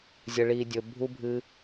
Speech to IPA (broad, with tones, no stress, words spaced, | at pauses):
zʲə˨ɭi˨dʲɵ˨ bʱu˧bʱɨ˧